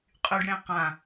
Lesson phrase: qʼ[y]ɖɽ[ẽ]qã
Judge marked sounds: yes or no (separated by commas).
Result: yes, yes